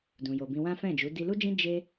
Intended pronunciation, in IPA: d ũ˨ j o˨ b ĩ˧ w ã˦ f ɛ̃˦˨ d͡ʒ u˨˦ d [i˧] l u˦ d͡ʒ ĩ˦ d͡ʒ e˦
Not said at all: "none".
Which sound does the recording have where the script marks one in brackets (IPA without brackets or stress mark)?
i˧